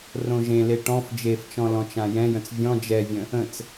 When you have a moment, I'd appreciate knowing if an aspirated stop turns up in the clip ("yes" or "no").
no